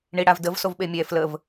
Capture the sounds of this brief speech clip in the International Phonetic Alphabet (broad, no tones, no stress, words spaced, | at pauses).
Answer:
ɳiɽavdəv sovɓemʲɛ fləv